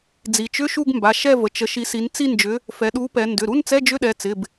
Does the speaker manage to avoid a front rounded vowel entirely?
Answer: no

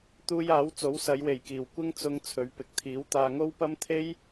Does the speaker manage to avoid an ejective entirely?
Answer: yes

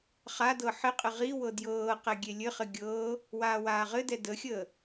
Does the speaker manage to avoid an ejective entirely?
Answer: no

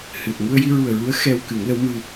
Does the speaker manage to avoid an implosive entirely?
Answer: yes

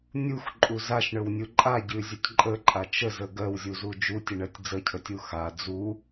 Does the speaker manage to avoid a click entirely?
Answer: no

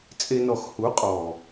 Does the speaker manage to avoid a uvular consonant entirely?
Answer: no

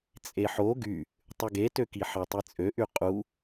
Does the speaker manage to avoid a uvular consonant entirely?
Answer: no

